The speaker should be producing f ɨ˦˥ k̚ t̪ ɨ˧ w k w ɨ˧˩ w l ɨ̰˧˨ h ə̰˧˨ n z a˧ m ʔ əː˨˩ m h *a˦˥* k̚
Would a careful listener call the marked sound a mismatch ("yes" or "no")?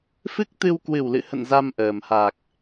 yes